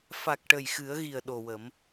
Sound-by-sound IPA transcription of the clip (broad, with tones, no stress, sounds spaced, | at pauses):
f a˨˩ k̚ ʈ ə˨˩ j x ɨ˨˩˦ ə̯ ɣ i˨˩ ə̯ ɗ o˨˩ w ə˨˩˦ m